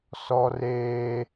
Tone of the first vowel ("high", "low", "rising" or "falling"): high